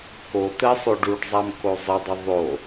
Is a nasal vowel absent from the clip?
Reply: yes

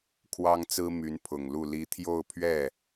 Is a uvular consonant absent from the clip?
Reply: yes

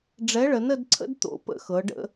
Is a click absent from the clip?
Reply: no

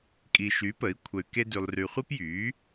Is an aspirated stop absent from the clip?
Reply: no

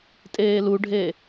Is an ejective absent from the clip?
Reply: no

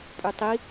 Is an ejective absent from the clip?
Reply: no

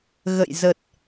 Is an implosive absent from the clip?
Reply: yes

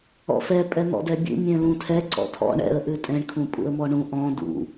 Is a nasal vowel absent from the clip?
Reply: no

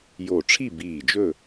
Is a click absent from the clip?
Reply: yes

